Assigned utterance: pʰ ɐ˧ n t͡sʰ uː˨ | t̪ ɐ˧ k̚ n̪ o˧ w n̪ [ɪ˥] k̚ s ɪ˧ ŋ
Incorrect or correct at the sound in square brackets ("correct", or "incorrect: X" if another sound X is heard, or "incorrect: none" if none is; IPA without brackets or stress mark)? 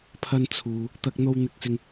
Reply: incorrect: ɪ˧